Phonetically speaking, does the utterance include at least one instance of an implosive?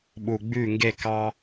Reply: yes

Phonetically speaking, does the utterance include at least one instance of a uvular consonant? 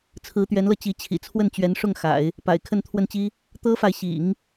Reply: no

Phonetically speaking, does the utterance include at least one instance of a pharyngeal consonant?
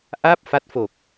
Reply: no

